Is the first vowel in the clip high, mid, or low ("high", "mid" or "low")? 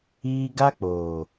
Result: high